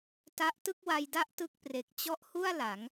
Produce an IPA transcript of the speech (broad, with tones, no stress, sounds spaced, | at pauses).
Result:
t a˥˩ ʔ t ɯ˥˩ k̚ w a˧ j d a˦˥ ʔ t ɯ˥˩ k̚ p r e˨˩ k̚ t͡ɕ ɔ˦˥ ʔ h u˥˩ a̯ l a˩˦ ŋ